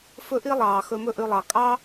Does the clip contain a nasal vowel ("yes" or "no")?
no